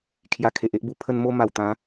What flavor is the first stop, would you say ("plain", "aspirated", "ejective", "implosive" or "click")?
aspirated